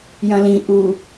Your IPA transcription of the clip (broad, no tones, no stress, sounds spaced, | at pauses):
j ɐ̃ l ĩ ʔ u